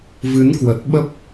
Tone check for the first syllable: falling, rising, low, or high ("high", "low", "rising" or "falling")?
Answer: rising